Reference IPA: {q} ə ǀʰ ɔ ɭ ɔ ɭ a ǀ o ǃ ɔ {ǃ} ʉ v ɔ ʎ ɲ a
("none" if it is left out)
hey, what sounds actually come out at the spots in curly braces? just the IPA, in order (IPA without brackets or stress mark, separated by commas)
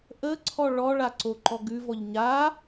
ʔ, ɡ